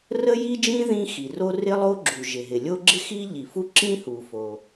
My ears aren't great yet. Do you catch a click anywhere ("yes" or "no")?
yes